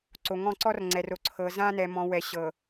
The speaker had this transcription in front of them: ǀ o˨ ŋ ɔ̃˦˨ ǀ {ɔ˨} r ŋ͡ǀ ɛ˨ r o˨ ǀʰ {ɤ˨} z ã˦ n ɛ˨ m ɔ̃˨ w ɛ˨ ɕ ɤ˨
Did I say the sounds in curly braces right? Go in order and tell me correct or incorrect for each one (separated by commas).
incorrect, correct